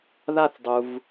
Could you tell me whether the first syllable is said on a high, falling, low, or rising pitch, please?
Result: falling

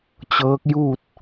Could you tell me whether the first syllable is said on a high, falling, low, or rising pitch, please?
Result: rising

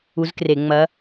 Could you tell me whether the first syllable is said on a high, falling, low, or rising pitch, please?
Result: rising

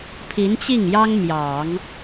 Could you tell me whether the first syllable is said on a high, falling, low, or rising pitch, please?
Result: rising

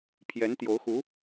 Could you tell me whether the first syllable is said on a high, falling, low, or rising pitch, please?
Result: rising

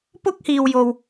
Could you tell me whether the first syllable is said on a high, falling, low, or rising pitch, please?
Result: high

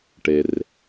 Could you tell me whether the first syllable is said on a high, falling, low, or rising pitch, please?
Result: low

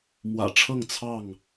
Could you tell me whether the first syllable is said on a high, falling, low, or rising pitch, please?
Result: low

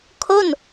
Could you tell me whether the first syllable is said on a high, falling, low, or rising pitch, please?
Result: falling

